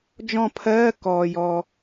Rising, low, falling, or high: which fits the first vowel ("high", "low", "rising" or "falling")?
falling